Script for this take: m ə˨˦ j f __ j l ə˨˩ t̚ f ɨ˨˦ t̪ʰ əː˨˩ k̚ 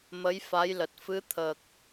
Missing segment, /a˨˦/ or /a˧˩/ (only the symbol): a˨˦